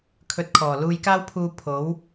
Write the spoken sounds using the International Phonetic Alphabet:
kʰ ɵ˧ t̚ kʰ ɔː˨˩ l uː˧ j k aː˥ w pʰ uː˧ pʰ o˨˥ w

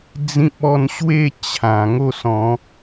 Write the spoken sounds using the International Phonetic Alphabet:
d͡z ĩ˦ p̚ ɔ˥˧ n ɕ w e˥˧ t͡ɕʰ ã˨˩ ŋ o˥˧ s ɔ̃˨˦

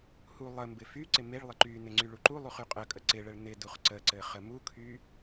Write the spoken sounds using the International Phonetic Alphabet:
h u lˠ ə m b ɪ f y ǀ ɪ m e ɭ lˠ ɪ ǃ y n ɪ ŋ͡ǀ y ɭ u ǃ u lˠ u χ y qʼ ə kʼ ə ǀ ɪ ɭ ə ɭ n ɪ d u χ ǀ ə ǀ ɘ χ ə m u kʰ y

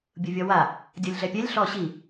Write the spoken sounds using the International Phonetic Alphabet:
bʲ u vʲ ɔ w a | dʲ ɔ lʲ ɮ ɛ pʲ ɛ lʲ ɬ ɔ ɕ i

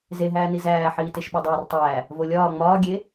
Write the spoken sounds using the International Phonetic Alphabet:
z e ɦ æː n i z æː ħ iː t e ʃ ɓ ɒ dˤ æː r tˤ æː | v o lʲ ɒː ŋ͡m ɒː ɡʲ e

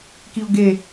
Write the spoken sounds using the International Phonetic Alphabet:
k i ʊ̯ ɡ e

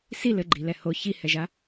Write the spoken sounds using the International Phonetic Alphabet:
s i l ɘ ɡ͡ǃ i l ɛ h o ç i h ɛ ʒ a

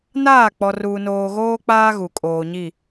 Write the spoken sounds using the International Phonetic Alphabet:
n aː˦˨ k͡p ɔ˨ r uː˨ n oː˨ ɣ oː˦ k͡p aː˦ ɣ u˨ kʼ oː˨ ɲ i˦˨

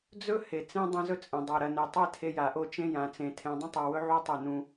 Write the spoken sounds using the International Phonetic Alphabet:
d͡z ɵ˦ h e˨ t͡s ẽ˦ dˤ ɐ̃˦ z ɵ˦ t͡sʼ ẽ˨ dˤ o˨ ɾ ɐ˨ n e˨ tˤ e˦ tʰ e˦ j a˨ ʔ o˦˨ t͡ʃ ẽ˦ j ã˨ t͡s ẽ˨ tʰ ẽ˨ dˤ ɐ̃˦ tˤ o˨ w ɵ˦ ʕ u˦ tˤ e˦˨ n ũ˦

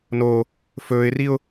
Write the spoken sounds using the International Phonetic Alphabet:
n o | f ɵː ɪ̯ r i ʊ̯

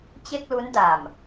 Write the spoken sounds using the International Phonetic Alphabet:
t͡ɕ e˥˩ k̚ l u˦˥ n d a˨˩ m

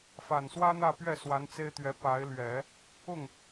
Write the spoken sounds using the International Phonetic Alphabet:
f a˨˩ n s w ä˥ n̪ ä˥˧ p ɥ ɛ˥˩ s w a˧˥ n t͡s e˥ ɪ̯ t̪ ɥ ɛ˧˥ p a˧˥ ɪ̯ l ɥ ɛ˨˩˦ | ʊ˥˩ ŋ

